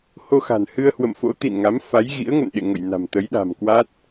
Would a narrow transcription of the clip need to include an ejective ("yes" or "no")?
no